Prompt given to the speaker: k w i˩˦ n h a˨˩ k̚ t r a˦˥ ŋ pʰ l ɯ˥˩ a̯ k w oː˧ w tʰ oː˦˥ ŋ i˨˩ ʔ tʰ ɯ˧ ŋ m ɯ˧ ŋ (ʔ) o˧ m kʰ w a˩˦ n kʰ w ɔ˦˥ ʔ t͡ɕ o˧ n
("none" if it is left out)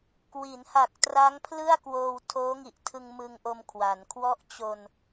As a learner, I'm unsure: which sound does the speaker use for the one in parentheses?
ʔ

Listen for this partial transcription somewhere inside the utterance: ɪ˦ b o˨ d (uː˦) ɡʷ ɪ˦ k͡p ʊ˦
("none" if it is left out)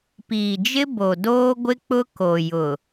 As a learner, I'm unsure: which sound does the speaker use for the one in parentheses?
oː˦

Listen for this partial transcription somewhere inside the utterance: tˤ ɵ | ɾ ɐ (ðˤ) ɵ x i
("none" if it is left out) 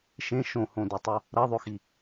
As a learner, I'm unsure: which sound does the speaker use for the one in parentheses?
ðˤ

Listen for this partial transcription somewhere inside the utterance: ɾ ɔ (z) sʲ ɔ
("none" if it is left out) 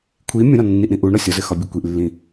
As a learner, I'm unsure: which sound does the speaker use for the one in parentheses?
none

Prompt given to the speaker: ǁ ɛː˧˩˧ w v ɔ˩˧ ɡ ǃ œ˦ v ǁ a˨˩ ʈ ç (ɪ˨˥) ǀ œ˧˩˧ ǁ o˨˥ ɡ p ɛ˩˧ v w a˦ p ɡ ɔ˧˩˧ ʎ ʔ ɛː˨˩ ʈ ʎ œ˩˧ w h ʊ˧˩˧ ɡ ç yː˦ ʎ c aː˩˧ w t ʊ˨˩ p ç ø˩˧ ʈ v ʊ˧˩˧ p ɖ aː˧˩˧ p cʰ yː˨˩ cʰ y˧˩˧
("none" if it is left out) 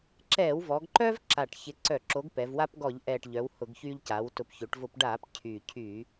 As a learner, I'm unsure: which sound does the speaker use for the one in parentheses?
ɪ˨˥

